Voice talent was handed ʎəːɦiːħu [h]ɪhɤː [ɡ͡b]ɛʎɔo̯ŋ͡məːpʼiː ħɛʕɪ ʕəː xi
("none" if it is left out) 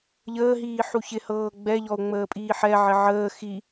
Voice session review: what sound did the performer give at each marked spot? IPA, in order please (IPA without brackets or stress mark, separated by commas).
ç, ɡ͡b